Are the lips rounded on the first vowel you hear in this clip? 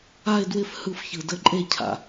no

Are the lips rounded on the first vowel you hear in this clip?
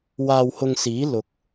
no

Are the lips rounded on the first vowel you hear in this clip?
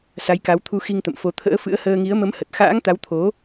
no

